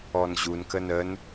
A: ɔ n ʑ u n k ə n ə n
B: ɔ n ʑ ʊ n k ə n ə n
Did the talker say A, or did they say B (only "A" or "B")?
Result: A